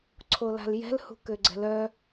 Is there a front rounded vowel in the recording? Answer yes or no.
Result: yes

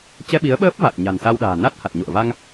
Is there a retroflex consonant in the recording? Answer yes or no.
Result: no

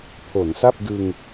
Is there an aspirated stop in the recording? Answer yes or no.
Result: yes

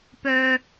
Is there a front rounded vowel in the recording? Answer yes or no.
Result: yes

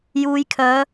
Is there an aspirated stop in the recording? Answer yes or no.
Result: yes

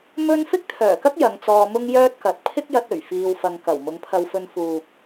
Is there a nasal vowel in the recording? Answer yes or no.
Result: no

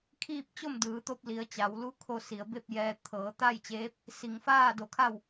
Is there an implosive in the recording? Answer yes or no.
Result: no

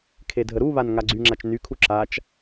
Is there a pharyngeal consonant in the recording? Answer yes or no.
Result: no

